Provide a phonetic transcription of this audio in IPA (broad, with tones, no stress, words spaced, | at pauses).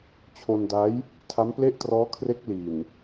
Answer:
t͡ɕʰo˧nda˦˥j | tʰa˦˥mple˥˩ʔtrɔː˦˥kʰre˦˥k̚ li˨˩n